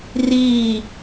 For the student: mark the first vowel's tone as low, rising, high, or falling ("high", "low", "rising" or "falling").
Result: falling